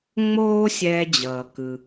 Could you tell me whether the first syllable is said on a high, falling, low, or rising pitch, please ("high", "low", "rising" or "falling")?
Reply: high